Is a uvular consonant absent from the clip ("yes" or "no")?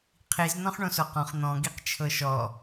no